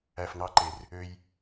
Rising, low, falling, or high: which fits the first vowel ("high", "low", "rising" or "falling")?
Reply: low